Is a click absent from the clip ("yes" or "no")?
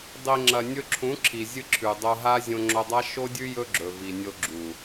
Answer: no